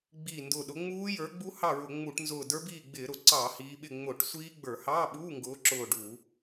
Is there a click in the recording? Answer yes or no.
yes